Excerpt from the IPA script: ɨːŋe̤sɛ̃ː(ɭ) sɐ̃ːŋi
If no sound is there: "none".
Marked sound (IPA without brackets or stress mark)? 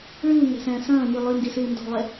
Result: none